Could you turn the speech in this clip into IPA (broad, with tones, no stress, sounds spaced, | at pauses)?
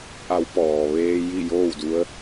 ʔ a˩˧ w p ɔː˩ ʋ eː˧ j i˥˨ j oː˥˨ w d u˧˥ ə̯